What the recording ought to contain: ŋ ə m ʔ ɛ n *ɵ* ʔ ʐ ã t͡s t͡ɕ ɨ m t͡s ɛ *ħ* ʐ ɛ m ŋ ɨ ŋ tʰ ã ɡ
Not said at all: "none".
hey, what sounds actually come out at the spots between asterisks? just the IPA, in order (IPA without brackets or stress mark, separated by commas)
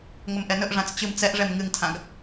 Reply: ɵ, ʔ